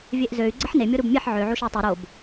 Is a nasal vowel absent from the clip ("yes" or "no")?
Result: yes